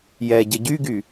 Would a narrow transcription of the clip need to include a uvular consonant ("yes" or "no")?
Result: no